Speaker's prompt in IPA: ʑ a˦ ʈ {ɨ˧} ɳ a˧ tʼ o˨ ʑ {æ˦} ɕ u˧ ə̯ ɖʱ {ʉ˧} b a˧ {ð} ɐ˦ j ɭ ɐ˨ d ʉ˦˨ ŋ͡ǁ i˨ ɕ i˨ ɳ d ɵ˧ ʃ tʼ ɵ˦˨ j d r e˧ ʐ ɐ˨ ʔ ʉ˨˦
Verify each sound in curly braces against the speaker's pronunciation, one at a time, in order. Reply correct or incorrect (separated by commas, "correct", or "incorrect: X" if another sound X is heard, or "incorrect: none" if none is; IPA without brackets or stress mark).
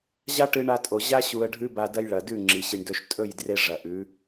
correct, incorrect: a˦, incorrect: ʉ˦, incorrect: d